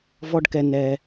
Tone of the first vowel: high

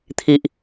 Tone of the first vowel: low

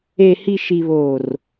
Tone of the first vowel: low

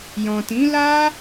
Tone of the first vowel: low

